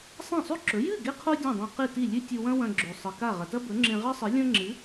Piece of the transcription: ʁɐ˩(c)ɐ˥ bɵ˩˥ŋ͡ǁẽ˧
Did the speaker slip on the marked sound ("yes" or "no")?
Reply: yes